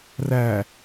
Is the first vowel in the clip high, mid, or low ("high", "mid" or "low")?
low